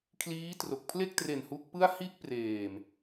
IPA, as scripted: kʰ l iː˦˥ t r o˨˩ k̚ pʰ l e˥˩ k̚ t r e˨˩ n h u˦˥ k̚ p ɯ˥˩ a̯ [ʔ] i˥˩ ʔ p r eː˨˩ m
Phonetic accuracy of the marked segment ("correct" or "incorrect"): incorrect